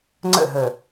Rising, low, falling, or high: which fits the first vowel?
falling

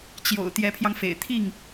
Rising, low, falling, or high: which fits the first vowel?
low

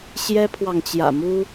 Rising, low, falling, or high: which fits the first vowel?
high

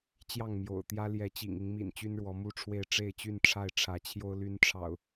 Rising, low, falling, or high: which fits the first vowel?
falling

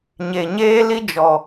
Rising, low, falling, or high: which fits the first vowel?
low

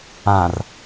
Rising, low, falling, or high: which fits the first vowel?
low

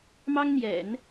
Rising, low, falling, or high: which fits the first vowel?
high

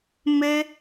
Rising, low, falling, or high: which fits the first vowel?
high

